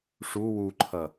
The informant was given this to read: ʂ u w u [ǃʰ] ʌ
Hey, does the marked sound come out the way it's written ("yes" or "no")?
yes